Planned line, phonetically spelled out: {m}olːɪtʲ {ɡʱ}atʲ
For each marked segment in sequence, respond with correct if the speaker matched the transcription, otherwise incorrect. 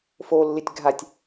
incorrect: f, correct

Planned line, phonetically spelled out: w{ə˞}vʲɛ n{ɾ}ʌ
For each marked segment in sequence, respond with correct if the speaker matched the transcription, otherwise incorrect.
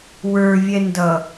correct, incorrect: d

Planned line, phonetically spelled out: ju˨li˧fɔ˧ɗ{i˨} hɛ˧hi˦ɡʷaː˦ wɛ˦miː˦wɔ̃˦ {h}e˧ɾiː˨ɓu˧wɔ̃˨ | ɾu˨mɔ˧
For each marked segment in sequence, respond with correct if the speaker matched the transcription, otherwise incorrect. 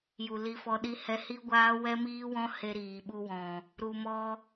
incorrect: i˦, correct

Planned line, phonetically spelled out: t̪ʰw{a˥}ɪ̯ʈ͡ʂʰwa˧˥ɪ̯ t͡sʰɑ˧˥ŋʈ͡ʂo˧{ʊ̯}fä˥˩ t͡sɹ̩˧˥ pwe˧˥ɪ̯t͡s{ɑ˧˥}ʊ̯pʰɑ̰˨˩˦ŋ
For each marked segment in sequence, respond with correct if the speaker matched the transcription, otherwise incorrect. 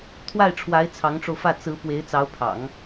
incorrect: a˥˩, correct, correct

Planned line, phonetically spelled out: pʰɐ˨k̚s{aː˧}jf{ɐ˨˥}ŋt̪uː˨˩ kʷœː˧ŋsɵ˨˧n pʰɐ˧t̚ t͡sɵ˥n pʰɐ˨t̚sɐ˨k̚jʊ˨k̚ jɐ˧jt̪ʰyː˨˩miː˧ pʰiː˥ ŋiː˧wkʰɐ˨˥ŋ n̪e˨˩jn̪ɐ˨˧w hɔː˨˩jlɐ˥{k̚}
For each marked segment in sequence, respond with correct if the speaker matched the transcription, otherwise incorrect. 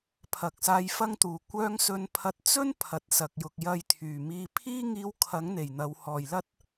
correct, incorrect: ɐ˥, incorrect: t̚

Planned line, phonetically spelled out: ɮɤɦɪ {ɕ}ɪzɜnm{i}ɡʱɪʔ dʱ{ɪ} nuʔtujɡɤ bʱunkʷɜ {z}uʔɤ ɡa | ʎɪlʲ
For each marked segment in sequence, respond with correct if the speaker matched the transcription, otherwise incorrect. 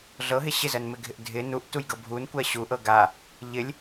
correct, incorrect: ɪ, correct, incorrect: ɕ

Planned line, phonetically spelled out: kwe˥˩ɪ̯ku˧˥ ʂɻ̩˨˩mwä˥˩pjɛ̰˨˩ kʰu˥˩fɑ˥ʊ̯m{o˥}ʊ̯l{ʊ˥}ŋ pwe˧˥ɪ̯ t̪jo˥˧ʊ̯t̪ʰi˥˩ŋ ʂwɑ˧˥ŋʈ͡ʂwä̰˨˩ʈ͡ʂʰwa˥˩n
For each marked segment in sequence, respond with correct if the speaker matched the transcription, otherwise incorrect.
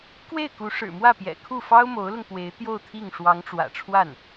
incorrect: o˧˥, incorrect: ʊ˧

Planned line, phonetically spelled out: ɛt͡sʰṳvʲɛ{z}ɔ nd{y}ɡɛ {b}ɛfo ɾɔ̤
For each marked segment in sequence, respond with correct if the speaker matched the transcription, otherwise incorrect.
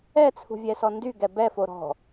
incorrect: s, correct, correct

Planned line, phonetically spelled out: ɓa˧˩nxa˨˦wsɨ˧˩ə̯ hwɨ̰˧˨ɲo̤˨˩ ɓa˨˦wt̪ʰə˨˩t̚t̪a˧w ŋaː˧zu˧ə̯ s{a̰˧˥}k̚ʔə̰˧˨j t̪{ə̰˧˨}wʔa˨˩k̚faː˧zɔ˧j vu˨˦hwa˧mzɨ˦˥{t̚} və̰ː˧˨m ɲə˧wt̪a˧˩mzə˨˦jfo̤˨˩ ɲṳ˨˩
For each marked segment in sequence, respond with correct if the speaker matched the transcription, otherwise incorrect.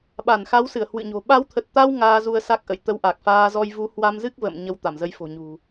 incorrect: a˦˥, incorrect: ə˧, incorrect: k̚

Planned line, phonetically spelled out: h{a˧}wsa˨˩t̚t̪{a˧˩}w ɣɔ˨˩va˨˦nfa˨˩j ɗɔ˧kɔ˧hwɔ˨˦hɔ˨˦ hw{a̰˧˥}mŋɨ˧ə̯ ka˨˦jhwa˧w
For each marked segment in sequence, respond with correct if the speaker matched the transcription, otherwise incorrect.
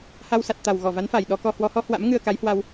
correct, incorrect: a˨˩, correct

